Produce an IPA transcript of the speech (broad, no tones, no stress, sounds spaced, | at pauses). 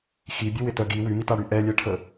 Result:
x i bʲ ʊ w ɪ t œ ɡ i w y m i t a ɽ y ʔ ɛ lʲ ɛ ʈʰ ə